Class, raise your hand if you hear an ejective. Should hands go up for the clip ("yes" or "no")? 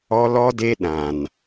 no